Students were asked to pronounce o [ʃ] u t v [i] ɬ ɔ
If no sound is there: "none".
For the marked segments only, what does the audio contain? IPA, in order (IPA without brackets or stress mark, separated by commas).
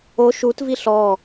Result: ʃ, i